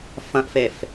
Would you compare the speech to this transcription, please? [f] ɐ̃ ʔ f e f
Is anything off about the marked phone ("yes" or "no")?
no